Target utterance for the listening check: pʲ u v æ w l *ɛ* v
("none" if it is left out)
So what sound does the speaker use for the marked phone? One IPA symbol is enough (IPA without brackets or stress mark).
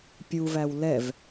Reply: ɛ